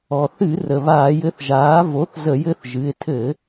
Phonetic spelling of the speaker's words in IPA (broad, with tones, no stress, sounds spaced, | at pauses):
ɔ˩ θ ɨ˧˩˧ r ə˩ β aː˧˩˧ j ɘ˧˥ θ ʒ aː˩˥ v o˩˥ θ z ə˧˩˧ j ɘ˧˥ θ ʒ ɨ˩˧˩ ɪ̯ tʰ ɘ˧˩˧